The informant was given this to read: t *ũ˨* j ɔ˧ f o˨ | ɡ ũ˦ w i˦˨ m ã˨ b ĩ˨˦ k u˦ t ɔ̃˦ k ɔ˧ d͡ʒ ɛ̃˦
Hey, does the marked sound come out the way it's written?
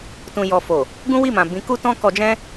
no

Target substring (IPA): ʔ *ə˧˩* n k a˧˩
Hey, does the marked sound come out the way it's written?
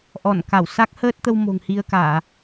no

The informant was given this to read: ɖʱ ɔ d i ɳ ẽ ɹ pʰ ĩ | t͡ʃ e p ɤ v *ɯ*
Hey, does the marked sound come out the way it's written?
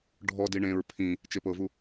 no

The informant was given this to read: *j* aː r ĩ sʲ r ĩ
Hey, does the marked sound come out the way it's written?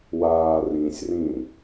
no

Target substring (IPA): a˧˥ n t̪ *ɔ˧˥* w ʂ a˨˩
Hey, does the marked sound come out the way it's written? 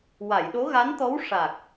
yes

